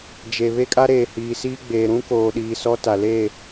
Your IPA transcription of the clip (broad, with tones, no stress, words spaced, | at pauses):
d͡ʒe˨ βe˦kʼa˦ ɾeː˨ hiː˨ siː˦ɡ͡beː˨ ɾũ˦koː˨ɗiː˨ sɔ˦ ta˨leː˦˨